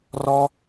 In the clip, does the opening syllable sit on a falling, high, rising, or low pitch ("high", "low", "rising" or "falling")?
high